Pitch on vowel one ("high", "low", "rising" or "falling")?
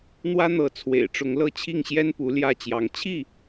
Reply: high